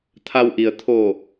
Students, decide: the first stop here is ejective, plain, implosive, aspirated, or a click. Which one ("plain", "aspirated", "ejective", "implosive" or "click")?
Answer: aspirated